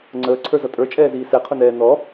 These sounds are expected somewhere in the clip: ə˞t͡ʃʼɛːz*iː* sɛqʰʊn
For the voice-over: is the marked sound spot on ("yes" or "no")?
yes